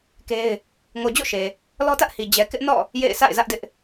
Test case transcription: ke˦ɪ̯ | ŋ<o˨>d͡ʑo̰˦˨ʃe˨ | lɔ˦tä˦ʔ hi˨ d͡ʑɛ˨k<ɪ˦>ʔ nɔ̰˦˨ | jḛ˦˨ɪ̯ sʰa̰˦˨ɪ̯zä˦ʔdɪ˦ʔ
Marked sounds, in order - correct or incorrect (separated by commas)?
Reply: correct, correct